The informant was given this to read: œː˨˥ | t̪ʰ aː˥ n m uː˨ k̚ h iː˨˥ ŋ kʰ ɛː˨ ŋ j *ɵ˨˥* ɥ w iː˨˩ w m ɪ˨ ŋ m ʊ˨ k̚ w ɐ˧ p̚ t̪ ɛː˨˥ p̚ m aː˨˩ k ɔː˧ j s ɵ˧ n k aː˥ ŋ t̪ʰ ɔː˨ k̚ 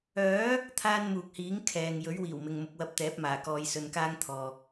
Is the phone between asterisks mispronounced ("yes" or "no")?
no